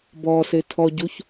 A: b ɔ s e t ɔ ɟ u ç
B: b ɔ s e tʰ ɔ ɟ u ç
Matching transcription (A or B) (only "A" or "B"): B